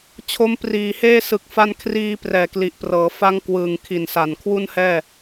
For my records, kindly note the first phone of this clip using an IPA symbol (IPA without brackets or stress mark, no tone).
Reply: t͡ɕʰ